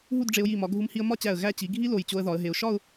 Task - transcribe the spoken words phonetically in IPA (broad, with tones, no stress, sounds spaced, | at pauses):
ɦ u˥˧ d ɖ͡ʐ e˧ ʊ̯ j i˧˩ m ɒ˩˧ ɡʱ u˧ m h i˧ ə̯ m ɒ˥˧ t͡ɕ æ˧˩ ə̯ ɣ æ˥˧ t͡ɕ i˩˧ ɡʱ i˥ l o˧˩ j t͡ɕ o˧ ə̯ ð ɒ˩˧ ə̯ ɦ e˩˧ ʊ̯ ʃ ɒ˥˧ ʊ̯